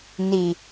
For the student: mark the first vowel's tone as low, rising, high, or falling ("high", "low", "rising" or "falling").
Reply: low